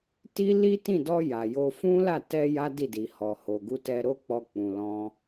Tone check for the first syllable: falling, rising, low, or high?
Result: high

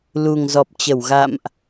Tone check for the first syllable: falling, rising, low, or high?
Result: low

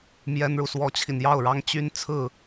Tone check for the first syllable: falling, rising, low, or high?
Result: high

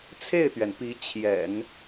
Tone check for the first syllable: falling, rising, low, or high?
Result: falling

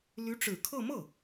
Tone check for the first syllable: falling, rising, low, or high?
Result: rising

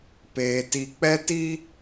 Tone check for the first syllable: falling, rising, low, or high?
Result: high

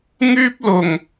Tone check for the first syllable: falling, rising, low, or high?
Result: high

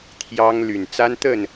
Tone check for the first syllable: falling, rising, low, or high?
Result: high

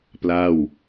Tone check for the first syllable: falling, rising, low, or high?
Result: falling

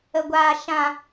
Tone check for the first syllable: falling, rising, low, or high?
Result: low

